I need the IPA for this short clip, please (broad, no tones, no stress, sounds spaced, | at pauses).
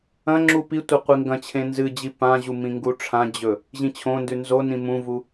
ɐ̃ ŋ͡ǁ u p i tʷ e qʷ i ŋ ɡ ɐ̃ t͡ɕʰ ẽ n z ɨ d͡ʑ i p ã ʑ u m ĩ ŋ ɡ u ʈ͡ʂʰ ã d͡ʑ ɵ | ʑ ĩ t͡ɕʰ õ n d ʉ n z o n ĩ m ũ v u